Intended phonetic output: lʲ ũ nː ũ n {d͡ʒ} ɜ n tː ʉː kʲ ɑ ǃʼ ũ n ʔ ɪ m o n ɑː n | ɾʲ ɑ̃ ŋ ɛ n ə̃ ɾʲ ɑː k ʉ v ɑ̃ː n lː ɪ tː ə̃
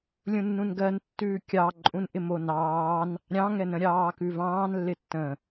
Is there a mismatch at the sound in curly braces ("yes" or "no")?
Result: yes